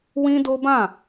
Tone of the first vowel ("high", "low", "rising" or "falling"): high